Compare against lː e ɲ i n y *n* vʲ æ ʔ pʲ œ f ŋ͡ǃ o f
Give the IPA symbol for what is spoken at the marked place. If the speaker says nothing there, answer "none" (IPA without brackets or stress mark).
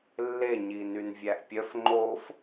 n